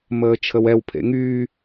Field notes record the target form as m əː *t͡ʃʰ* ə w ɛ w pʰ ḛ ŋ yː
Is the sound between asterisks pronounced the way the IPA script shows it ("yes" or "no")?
yes